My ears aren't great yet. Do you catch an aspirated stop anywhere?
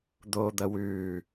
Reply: no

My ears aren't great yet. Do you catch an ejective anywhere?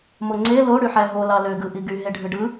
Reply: no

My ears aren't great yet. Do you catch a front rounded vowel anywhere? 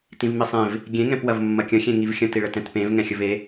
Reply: no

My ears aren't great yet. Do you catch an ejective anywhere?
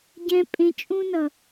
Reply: yes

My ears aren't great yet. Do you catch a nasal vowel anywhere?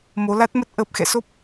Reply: no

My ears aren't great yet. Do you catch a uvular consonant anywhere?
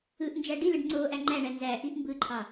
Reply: no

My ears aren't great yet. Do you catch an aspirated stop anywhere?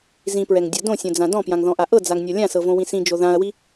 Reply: no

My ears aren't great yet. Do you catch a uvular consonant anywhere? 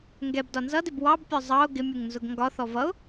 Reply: no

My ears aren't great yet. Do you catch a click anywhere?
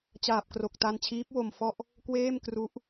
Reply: no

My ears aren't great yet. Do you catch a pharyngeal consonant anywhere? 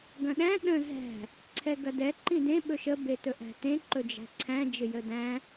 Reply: no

